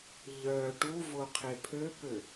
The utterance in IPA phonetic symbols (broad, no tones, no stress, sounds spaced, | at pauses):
ʎ œ ʈ u v o qʰ e pʰ ø p ø